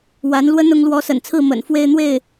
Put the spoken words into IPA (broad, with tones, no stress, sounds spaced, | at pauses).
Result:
w a˧˥ n l w ə˥ n ʊ˧˥ ŋ l w ɔ˧˥ s ə̰˨˩ n t͡sʰ ɹ̩˥˩ m ə̰˨˩ n f w e˥˧ ɪ̯ n̪ w e˥˩ ɪ̯